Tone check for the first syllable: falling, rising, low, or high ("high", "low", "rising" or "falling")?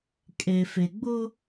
low